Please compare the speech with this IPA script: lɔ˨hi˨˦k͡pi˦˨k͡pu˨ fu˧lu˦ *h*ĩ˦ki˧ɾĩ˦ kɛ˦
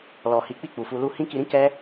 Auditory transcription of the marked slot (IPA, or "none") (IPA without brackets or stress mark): h